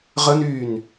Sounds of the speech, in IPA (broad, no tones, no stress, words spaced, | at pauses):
ʁənyːn